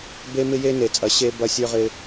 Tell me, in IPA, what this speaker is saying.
b e˦ m ɪ˦ j e˦ n e˨ t͡sʼ ɐ˨ ɕ e˦ b ɐ˦ sʲ ə˞˦ ʁ ɪ˦

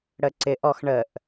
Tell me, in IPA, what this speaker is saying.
ɽ ə ǀ ɪ ʔ ɔ x ɳ ə ʔ

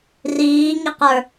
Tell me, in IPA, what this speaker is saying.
r iː ŋ i q ə˞

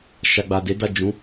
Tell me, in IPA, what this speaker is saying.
ʃ a˨ ɡ͡b a˨ d e˨˦ d a˦˨ d͡ʒ ũ˨˦

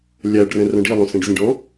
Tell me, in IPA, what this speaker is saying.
lʲ æ ɖ r ɛ̃ r œ̃ ɖ i lˠ õ s ẽ ɖ zʲ ẽ ɖ ɔ̃

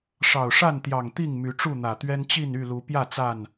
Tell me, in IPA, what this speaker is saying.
ʂ ɑ˨˩ ʊ̯ ʂ a˥˨ n t̪ j ɑ˨˩ ŋ t̪ i˥˨ ŋ m y˨˦ ʈ͡ʂ u˥˨ n̪ ä˨˩ t̪ ɥ ɛ˦ n t͡ɕ i˥˨ n y˥˨ l u˨˦ p j ä˥˨ t͡s a˥˨ n

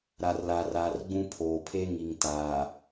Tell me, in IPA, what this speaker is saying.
ɾ a˨ r l a˨ r aː˨ r ɡ͡b ũ˦ pʰ oː˨ pʰ e˦ ŋ i˨ ŋ t aː˨

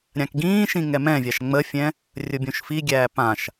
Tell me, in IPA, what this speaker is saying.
ɾʲ ã k ɡ ĩː ʃ ĩ ŋ ɛ m ɛ̃ vʲ a ʃ ŋ͡m ə fʲ ɛ̃ | rʲ ʊ bʲ õ ʃ f i ɡʲ æː p ã ʃ

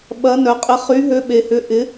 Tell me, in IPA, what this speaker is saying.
ɓ ɐ˨˥ n œ˨ qʼ ɪ˨˥ χ y˨˥ ɦ ø˨˥ ɓ e˨ h ʏ˨˥ ʔ ɪ˨˥

